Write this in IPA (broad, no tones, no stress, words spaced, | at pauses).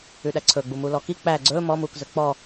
ʉɗæǀʰɵɡ͡bu mulɔki k͡pæ ɡ͡ǀɵː mɔmuːkzɵ k͡pɔ